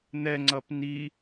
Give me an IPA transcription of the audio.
n̪ ɛ ŋ͡ǀ ʌ p n i

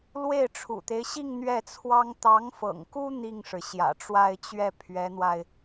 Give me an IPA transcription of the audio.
l w e˥˩ ɪ̯ ʈ͡ʂʰ ṵ˨˩ t̪ e˦ ɪ̯ ɕ i˥˧ ŋ n̪ ɥ ɛ˥˩ t͡sʰ w ɑ˥ ŋ t̪ ɑ˧˥ ŋ f ɤ̰˨˩ ŋ k u˥ n̪ i˥˩ ŋ ʂ ɻ̩˩ ɕ j ä̰˨˩ ʈ͡ʂ w a˥˧ ɪ̯ t͡ɕ ɥ ɛ˥˩ pʰ ɥ ɛ˧˥ n̪ w a˧ ɪ̯

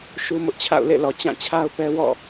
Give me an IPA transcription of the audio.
ʃ u˦ m ʊ˦ ʔ t͡ɕʰ a̰˦˨ ʊ̯ l ḛ˦˨ l ɔ˨ t͡ɕ ã˦˨ t͡ɕʰ a˦ ʊ̯ p ɛ˦ w ɔ̰˦˨

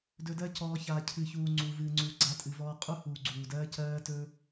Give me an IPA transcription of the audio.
d ɵ˧ d ɜ˦ c ɔː˧ ç aː˨ cʰ ɨ˨ ç uː˨ ŋ͡ǀ u˨ v ɨː˨ ŋ͡ǀ uː˨ ɡ͡ǀ a˧ tʼ ɨ˨ v ɔː˧ qʼ u˦ h uː˨ ɡ͡ǀ uː˨ d ɜː˦ c ɜː˦ t ɵ˦

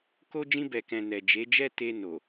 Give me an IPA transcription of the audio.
k o˦ d͡ʒ ĩ˧ b ɛ˨ k ɛ̃˨ n ɛ˨ d͡ʒ e˨˦ d͡ʒ ɛ˦ t e˧ n o˨

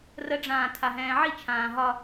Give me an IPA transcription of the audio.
r ə ɖ͡ʐ ãː tʰ a ɦ ɛ̃ː ʕ i t͡ʃʰ ãː ɦ ɒ

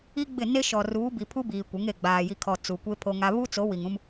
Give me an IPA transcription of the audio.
i˦ ɡ͡b ɪ˦˨ n e˦ ʃ ɔ˨ r uː˨˦ b i˨ pʰ u˦ b iː˨ kʷ ɪ˨˦ ŋ e˨ ɡ͡b aː˨ j i˨ kʰ ɔ˨ t͡s u˨ kʷ e˦ pʰ o˦ ŋ a˦ β u˦ t͡s o˨˦ w i˨ ŋ ũ˦ m

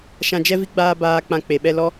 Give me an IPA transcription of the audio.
ʃ ã˧ d͡ʒ ɛ˦ v i˦ ɡ͡b aː˦ b aː˧ k͡p ã˧ k͡p e˨ ɓ ɛ˧ l ɔ˦

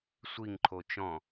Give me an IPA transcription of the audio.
sʷ i ŋ ǃʰ o t͡ʃ ɔ̃

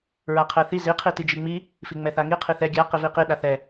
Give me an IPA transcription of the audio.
ɹ a qʰ ɛ θ i z i qʰ i t i d͡ʒ i ŋ͡m i | f i ŋ͡m ɛ θ a ŋ i qʰ i θ ɛ ɡʲ a q i v i q i ɗ a θ ɛ

